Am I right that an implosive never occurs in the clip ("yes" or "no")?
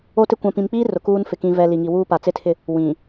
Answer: yes